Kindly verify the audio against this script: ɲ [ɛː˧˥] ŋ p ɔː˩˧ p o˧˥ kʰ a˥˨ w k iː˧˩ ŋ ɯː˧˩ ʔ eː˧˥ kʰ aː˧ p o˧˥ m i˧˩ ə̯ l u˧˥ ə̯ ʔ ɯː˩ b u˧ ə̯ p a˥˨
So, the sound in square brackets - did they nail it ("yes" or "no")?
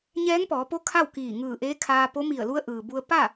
yes